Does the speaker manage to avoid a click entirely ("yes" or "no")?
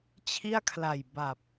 yes